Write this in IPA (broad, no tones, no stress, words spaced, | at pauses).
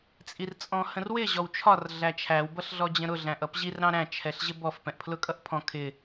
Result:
t͡sʼirt͡sʼɔ̃hə̃rwɪ ʑɔwt͡ʃʰɒr ɮæt͡ʃʰæw bʌɬɮɔd͡ʑə̃ɾʊ ɮæ̃ʔʌpʑir ɾɑ̃ɾæ̃ t͡ʃʰɛɬʑɪbɔf pɛ̃ʔpʰlʊkʼʌʔpʰɔ̃ kʰɪ